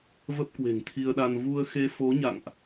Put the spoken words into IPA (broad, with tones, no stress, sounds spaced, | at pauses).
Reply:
v ə˦˥ p̚ k w e̤˨˩ ŋ t̪ʰ i˧ ə̯ ɗ a˧ n v u˧ ə̯ x e˧ f o˨˦ ɲ a̰˧˨ ŋ ʔ